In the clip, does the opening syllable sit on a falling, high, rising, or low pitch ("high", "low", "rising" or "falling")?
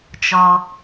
high